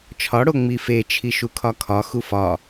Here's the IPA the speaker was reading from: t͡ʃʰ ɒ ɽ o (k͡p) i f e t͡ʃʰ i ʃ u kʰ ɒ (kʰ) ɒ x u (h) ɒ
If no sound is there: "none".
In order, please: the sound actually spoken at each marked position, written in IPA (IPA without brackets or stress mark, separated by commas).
ŋ͡m, kʰ, f